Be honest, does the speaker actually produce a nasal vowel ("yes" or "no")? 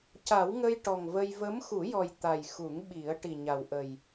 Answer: no